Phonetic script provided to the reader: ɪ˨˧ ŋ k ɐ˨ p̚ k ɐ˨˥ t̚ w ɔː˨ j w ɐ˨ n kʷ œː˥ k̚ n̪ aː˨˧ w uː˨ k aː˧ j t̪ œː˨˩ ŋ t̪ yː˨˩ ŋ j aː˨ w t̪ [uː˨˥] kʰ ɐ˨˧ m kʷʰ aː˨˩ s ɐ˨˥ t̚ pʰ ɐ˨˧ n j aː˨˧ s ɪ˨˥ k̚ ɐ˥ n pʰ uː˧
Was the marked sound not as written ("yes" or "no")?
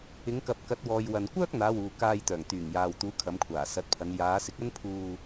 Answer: no